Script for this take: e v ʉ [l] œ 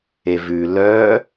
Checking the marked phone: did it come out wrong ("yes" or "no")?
no